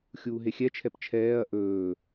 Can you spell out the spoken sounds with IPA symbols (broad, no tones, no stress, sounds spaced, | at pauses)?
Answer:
xʲ uː ɦ e xʲ ɛ t͡ʃʰ ɛ p t͡ʃʰ ɛː ɐ̯ ʔ ɵː